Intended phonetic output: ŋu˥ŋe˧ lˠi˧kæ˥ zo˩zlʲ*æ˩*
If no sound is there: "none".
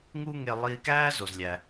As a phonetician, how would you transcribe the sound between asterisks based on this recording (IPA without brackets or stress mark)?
æ˩